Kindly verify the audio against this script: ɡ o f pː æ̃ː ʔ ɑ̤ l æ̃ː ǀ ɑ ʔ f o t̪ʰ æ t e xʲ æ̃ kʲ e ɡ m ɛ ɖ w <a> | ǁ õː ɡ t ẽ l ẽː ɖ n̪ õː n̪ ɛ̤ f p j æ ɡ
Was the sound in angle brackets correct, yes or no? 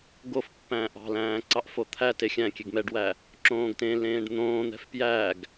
no